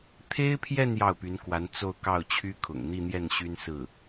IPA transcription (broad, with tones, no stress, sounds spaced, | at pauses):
t̪ʰ e˥ ɪ̯ pʰ j ɛ˥˧ n j ɑ˥˩ ʊ̯ p y˧˥ n k w a˧˥ n t͡s o˥˧ ʊ̯ k ɑ˥˩ ʊ̯ t͡ɕʰ y˥ kʰ ʊ̰˨˩ ŋ n̪ i˥˧ n̪ j ɛ˥˩ n ɕ y˥ n s ɹ̩˥˩